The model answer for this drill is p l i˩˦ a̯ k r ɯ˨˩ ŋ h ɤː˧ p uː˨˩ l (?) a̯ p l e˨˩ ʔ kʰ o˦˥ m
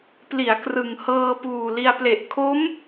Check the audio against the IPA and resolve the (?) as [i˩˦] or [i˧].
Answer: i˧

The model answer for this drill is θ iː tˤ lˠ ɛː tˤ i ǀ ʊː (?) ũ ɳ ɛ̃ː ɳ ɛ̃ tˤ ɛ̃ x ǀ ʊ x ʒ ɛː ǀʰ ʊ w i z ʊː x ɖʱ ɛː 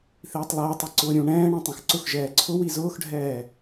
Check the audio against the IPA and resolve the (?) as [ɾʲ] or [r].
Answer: ɾʲ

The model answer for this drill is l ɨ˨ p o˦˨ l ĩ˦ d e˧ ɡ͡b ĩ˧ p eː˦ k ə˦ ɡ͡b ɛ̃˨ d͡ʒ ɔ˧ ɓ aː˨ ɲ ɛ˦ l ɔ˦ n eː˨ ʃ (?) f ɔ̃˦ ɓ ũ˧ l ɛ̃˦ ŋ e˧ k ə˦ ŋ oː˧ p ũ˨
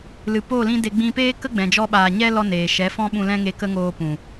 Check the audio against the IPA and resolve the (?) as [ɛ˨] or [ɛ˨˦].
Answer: ɛ˨˦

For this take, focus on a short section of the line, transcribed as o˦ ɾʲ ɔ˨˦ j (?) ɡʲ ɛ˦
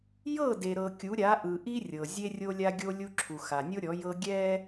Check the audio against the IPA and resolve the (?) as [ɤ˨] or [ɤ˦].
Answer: ɤ˦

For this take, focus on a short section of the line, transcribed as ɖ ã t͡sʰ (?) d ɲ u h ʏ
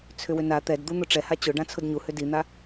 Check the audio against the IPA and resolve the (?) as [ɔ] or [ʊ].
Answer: ʊ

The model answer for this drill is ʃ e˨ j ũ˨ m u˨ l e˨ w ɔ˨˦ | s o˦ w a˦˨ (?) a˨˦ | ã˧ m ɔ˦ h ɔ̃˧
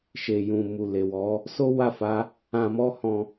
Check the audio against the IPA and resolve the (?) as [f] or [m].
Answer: f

